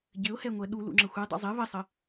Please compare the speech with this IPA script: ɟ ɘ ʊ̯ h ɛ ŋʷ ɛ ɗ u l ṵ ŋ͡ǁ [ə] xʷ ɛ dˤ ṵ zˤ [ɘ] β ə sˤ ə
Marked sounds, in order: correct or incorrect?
correct, correct

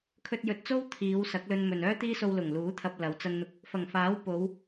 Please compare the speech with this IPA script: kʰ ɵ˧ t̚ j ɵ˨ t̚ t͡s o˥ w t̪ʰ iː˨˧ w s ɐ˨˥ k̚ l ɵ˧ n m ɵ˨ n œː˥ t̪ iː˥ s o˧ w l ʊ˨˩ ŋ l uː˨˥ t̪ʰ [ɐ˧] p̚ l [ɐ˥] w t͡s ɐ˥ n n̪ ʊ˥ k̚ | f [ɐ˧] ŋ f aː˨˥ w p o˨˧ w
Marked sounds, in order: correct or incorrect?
correct, incorrect: ɐ˨˧, incorrect: ɐ˨˩

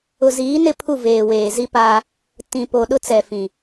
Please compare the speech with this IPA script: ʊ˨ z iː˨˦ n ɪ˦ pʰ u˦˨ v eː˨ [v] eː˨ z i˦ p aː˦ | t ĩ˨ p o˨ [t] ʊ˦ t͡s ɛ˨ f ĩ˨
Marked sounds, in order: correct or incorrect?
incorrect: w, incorrect: ɗ

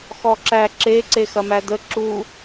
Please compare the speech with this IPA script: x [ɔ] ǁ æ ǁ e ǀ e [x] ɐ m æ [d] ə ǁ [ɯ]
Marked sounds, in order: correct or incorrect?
correct, correct, correct, incorrect: u

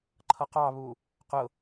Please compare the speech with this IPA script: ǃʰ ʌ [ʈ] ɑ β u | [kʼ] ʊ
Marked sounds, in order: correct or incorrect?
incorrect: q, incorrect: q

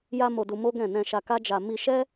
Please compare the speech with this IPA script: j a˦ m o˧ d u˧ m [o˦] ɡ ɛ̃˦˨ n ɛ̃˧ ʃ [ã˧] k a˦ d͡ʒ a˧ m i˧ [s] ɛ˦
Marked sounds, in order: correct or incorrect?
correct, incorrect: a˧, incorrect: ʃ

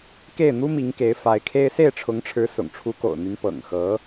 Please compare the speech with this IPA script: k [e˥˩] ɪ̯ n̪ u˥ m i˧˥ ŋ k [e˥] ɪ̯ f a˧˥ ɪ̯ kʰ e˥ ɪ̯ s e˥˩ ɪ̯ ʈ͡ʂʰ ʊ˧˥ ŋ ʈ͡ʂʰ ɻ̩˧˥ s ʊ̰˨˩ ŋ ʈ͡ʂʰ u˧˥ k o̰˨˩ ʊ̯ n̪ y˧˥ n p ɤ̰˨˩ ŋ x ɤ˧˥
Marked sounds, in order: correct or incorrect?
correct, incorrect: e˧˥

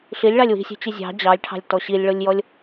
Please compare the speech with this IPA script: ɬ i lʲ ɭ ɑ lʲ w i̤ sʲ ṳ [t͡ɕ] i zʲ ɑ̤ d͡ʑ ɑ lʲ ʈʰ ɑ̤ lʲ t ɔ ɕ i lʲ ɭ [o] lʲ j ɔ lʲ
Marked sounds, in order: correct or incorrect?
correct, correct

